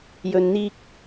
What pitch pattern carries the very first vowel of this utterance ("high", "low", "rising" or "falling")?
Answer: low